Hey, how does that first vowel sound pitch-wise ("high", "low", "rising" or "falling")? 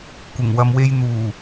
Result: low